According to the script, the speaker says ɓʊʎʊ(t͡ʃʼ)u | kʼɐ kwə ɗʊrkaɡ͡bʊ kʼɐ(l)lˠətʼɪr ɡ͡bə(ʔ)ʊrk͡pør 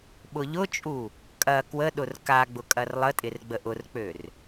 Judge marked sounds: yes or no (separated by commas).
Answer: yes, no, yes